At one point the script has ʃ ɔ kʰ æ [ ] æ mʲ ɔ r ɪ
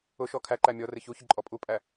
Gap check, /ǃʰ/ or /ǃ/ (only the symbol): ǃ